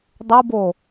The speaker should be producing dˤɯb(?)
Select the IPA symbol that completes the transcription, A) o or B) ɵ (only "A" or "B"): A